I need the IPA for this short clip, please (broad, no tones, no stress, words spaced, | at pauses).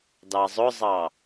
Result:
dɑzˤʊzˤɑ